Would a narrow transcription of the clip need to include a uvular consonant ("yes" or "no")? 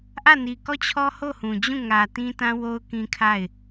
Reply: no